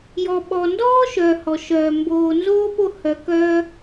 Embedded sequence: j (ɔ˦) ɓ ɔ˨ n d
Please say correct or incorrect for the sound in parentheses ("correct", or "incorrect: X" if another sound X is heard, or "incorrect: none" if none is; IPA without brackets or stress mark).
incorrect: ɔ˨